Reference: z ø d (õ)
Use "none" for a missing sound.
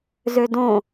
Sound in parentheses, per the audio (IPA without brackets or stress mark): õ